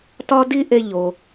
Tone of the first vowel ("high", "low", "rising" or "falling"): high